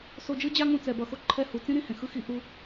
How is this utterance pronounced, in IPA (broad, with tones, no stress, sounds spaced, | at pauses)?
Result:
s o˧ d͡ʒ ɯ˦ d͡ʑ a˦ ŋ ũ˧ t͡s ɛ˨ b ʌ˨ x o˦ ǃʰ ɛ˧ h u˨ t͡s ĩ˦ ɾ ĩ˦˨ h ẽ˨ x ɯ˦ x i˧ ʔ u˧